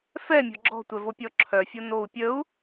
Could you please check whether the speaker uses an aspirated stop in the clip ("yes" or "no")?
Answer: yes